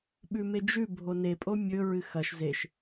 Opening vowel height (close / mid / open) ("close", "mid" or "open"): close